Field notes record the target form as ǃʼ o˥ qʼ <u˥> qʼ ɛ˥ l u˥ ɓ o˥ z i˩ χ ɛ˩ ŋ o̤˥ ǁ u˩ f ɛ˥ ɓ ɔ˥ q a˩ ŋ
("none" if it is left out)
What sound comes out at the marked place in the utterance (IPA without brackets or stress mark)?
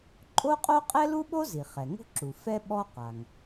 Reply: o˥